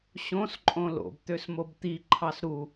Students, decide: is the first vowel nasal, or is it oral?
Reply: nasal